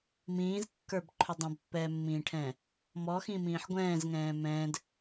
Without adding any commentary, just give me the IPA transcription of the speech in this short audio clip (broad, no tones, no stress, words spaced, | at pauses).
mĩːzkːə˞bǃʰʏ dˤɛ̃bpːɛːmːĩːʈʰɛ̃ː | mɔxĩmĩːħ ɡʷɛ̃ːzŋɛ̃ː mɛ̃ːd